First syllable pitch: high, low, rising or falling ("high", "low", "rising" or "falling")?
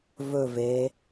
low